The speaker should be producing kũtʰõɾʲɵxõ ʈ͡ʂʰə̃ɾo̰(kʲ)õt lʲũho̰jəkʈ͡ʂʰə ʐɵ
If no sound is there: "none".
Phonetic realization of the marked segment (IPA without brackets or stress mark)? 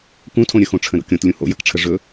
kʲ